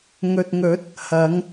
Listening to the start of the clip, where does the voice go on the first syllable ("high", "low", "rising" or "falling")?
low